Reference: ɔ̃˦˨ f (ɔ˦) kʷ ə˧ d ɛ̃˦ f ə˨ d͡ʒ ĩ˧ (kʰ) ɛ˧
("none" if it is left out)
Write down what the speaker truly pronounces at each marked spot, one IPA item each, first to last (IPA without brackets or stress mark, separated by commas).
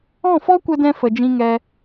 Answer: ɔ˦, ŋ